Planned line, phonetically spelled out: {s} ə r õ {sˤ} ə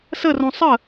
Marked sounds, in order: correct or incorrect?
correct, correct

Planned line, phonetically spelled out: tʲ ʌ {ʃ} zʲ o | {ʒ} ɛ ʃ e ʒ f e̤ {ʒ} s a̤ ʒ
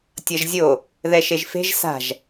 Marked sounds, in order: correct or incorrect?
incorrect: ʒ, incorrect: ð, correct

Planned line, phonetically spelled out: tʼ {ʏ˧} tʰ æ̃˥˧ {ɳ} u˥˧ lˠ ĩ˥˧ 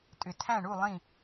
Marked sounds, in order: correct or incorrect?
correct, correct

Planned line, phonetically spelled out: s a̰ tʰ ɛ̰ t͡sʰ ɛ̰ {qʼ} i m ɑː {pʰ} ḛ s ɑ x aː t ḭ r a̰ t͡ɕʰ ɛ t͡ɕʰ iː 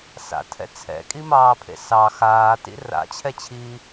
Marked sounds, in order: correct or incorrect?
incorrect: kʼ, correct

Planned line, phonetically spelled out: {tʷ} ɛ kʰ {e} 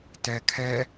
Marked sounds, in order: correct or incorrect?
incorrect: t, incorrect: ɛ

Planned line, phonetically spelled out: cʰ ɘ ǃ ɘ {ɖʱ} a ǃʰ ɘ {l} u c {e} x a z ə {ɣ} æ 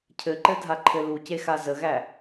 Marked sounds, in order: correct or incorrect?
incorrect: dʱ, correct, correct, correct

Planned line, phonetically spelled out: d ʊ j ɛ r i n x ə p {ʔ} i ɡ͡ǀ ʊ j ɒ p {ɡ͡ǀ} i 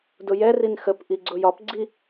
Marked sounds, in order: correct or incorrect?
correct, correct

